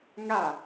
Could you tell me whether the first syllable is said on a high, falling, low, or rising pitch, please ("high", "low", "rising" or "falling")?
falling